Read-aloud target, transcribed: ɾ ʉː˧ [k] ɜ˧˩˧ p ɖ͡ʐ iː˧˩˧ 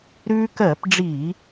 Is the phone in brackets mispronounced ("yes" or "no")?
no